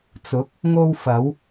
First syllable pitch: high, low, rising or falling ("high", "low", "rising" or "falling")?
rising